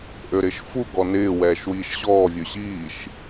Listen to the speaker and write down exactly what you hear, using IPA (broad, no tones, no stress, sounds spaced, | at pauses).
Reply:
ʔ ø ɾ ɪ ʃ f u ɡ ɔ n ɪː w ɛː ʃ w iː ʃ ɕ ɔː vʲ ø ɕ iː ʃ